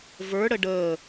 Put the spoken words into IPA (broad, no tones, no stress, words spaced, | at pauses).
və˞ɽə ɖəː